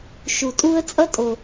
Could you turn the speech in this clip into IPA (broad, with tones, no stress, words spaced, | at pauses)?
ʃu˧tʼu˥ə̯ t͡sʼʌ˥tʼo˧